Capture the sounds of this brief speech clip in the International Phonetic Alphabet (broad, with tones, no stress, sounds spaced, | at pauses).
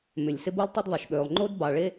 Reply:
m ʏ˩ lʲ s ɪ˥ b u˥ lˠ tˤ ɪ˥ d ðˤ ɪ˩ ʃ ɓ ø˩ lˠ ŋ͡ǃ o˥ d b ɑ˩ ɭ e˥